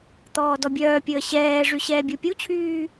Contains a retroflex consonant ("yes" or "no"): yes